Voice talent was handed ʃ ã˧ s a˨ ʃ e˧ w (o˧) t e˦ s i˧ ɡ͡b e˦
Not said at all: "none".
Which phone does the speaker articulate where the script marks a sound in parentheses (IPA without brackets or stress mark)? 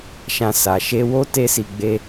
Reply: o˦